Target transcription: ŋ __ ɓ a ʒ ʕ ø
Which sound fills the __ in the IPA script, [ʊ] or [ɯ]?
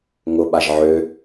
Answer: ʊ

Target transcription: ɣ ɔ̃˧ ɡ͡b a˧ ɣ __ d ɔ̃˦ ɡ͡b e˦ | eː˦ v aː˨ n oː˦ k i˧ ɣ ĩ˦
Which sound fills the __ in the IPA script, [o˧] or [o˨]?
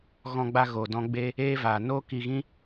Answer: o˨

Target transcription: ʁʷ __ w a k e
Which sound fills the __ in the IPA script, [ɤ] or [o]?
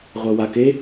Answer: ɤ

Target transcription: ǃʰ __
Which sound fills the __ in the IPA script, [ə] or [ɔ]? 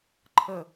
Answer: ə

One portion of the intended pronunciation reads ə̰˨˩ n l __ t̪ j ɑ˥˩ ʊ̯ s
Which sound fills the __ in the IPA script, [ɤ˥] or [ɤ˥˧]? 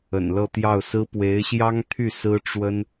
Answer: ɤ˥˧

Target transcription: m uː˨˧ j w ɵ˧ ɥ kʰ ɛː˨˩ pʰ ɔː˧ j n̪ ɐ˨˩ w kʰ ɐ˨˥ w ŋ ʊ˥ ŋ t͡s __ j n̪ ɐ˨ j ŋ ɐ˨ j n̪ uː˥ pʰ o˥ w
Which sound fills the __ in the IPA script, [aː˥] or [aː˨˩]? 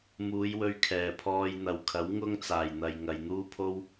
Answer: aː˨˩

